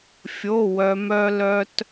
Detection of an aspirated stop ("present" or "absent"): absent